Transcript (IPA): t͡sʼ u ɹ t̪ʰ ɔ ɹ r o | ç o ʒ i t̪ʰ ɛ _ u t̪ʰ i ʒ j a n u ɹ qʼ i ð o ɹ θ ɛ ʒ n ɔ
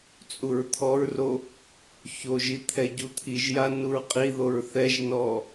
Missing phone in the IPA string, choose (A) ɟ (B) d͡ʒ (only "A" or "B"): A